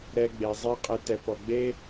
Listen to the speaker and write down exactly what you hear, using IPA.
ɾ ɛ˧ ɡ͡b e˨ zˤ a˦ qʼ e˧ t ɛ˨ p ɔ˨ ɡ͡b e˦

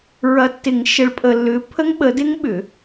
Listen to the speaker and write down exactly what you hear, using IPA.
ɹ ɐ˨ tː ɪ˨˩˦ ŋ ʃ ə˨˦ ɭ pʼ ə˨ lː ʏ˨˦ pʰ ə˦˥ ŋ ɓ ə˨˦ d ɪ˦˥ ŋ ɓ ʏ˨˩˦

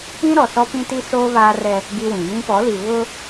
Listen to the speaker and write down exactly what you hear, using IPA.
ĩ˦ ɾ ɔ˨ s ɔ˦ p ĩ˦ t i˦ s oː˦ β aː˦ r ɛ˦ | ɡ i˦ w ĩ˨ j ĩ˦ p ɔ˨˦ l i˨ β ʊ˦

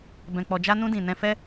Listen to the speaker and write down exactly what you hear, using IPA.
b ɛ̃˨ k͡p ɔ˨ d͡ʒ a˧ n ũ˧ d ĩ˨ n ɛ̃˧ f ɛ˦

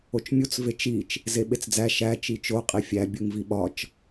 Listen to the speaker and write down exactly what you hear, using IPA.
o t͡ʃ mʲ u t͡s v e t͡ʃ i t͡ʃ | z e ɓ e t͡s d͡z æ ʃ æ t͡ʃ i t͡ʃ o qʼ i fʲ æ bʲ u ŋ v i ɓ ɒ t͡ʃ

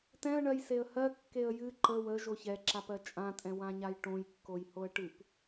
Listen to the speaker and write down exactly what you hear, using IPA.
t ɛ̃ ə̯ ɳ ɜ j s e ə̯ h ɜ kː e ə̯ j ɨ ǃ ə w ə ʒ o ç ɛ ǁ a p ɜ t͡ʃʼ ã tʼ ɛ̃ w ã ɲ a j ʈ õ j kː o j h o ə̯ ʈ ɨ p

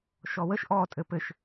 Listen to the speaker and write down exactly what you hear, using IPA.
ʃ ɔ w ə ʃ ʔ ɔ tʼ ɘ p ɘ ʃ

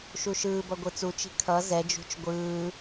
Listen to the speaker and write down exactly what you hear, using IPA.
ʃ u ʃ ɯː b ʌ ɡʷ ɯ t͡s u t͡ʃ i̤ kʰ ʌ z ɛ d͡ʒ ṳ t͡ʃ ɡʷ ɯː

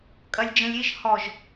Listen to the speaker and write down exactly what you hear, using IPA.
kʼ ɐ lʲ d͡ʒ ə̃ lʲ i ʒ h ɔ ʒ

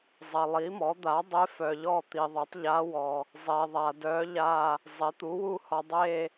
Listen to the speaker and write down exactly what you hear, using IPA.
zˤ ɐ˨ lˠ i˩˥ m ɔ˩˥ d̪ a˩˥ dˤ e˧˥ f œ˨ ʎ ɔ˦˨ t̪ i˨ ðˤ e˩˥ tˤ ʎ a˧˥ w ɔ˨ | zˤ e˨ ðˤ a˨ d œ˧˥ ʎ a˦˨ | zˤ e˩˥ t̪ u˩˥ w u˦˨ h ɔ˨ dˤ e˦˨

